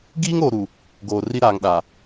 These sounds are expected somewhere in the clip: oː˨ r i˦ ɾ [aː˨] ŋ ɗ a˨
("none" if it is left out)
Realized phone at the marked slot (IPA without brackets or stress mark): aː˨